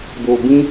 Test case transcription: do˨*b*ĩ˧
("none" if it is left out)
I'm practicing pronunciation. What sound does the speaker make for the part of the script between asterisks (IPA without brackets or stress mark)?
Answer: b